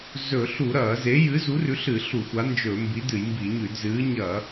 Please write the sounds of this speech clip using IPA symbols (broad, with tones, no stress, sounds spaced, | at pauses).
z ɵ˧˩˧ ɬ u˧˩˧ ɾ ɐː˧˩˧ z e˨˥ j ɨ˨˥ z u˨˥ r ʉ˨˥ ɬ ɨ˧˩˧ ɬ u˧˩˧ xʷ a˨˥ n d͡ʒ ɵ˧˩˧ m b i˨˥ d ɨ˧˩˧ j m b i˧˩˧ ɲ ʉ˧˩˧ d z ɨː˨˥ ɲ ɐ˧˩˧